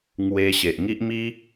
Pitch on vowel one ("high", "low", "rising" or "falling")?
high